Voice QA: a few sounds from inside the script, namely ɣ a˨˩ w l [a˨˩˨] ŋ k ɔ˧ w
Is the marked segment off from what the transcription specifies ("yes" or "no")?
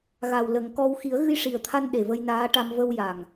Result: yes